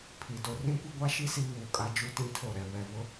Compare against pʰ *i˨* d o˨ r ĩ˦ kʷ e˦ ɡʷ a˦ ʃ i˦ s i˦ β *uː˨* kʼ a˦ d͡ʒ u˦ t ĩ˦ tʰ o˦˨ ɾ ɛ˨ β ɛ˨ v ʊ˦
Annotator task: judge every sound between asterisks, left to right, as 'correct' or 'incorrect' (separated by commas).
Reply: correct, correct